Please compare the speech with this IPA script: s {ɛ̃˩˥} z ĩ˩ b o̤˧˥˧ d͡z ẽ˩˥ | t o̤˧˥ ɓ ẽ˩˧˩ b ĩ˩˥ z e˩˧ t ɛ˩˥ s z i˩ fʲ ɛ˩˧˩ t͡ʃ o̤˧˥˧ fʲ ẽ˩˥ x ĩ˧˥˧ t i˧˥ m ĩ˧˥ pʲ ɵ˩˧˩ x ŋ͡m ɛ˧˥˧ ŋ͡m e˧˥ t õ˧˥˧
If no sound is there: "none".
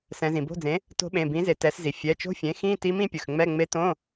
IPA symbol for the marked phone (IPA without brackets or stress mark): ɛ̃˩˧